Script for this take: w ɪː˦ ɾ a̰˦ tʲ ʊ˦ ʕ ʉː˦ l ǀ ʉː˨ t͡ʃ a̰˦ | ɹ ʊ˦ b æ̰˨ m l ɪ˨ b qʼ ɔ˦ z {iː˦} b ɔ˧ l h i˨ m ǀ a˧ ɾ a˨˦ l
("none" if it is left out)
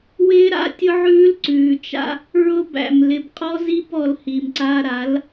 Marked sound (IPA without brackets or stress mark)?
i˦